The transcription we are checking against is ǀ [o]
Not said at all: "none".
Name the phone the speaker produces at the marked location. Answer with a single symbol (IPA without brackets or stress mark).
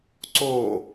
oː